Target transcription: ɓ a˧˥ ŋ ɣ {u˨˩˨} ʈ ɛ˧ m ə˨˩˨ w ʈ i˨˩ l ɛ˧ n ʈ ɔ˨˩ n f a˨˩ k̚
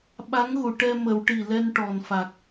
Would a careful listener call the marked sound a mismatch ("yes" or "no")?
no